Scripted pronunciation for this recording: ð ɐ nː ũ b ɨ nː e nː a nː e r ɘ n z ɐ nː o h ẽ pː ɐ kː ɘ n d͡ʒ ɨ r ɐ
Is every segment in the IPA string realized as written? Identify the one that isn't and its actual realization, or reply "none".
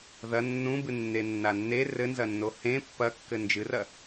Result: none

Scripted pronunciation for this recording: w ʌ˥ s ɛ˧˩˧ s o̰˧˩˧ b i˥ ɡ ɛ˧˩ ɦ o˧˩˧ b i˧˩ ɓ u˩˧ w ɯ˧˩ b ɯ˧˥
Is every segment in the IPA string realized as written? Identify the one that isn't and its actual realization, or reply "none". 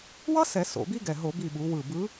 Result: none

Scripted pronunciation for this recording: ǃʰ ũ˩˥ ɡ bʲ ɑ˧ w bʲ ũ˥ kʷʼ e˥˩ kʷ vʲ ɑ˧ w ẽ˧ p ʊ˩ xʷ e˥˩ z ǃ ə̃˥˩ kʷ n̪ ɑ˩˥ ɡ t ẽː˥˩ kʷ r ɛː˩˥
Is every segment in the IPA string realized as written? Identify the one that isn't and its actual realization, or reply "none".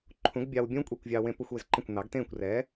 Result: none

